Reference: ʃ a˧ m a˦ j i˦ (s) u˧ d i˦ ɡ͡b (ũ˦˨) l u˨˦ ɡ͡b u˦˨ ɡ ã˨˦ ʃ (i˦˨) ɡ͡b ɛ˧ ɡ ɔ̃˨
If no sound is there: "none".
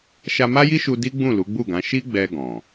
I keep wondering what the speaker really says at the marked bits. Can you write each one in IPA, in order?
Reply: ʃ, ũ˦˨, i˦

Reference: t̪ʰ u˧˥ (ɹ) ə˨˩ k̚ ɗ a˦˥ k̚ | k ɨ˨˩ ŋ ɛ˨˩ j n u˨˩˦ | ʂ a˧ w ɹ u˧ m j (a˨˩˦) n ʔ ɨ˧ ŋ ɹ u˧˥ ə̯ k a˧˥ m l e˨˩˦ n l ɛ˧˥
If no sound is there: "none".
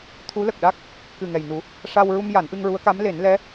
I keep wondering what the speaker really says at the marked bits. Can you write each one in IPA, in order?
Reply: l, a˨˩˦

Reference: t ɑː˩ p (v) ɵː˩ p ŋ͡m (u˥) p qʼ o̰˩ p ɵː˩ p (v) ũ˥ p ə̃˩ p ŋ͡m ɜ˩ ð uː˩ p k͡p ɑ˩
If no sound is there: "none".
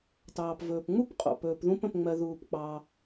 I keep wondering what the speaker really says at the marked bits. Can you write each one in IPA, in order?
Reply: v, u˥, ð

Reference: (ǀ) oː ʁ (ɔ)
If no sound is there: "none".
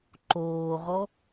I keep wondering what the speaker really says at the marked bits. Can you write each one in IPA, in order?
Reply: ǃ, ɔ

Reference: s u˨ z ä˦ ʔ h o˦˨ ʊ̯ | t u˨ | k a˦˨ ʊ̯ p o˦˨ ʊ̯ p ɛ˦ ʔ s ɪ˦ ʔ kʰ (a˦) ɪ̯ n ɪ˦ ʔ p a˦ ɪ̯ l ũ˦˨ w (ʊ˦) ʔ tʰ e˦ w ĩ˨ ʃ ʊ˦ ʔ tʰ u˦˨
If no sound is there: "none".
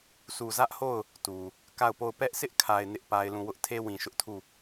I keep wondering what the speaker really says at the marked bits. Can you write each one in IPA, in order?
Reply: a˨, ʊ˦

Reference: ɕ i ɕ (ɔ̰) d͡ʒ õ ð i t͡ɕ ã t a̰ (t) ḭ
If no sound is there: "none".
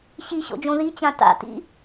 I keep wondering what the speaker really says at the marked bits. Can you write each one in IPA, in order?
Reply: o̰, t

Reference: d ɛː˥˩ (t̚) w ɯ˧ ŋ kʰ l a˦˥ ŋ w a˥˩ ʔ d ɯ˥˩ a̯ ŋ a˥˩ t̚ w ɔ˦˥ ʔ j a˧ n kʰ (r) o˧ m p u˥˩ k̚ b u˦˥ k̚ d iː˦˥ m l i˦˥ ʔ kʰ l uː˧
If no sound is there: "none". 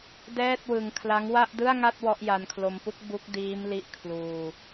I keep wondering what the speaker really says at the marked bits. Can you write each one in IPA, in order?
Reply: t̚, l

